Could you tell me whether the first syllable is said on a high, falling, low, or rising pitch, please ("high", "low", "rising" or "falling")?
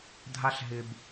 high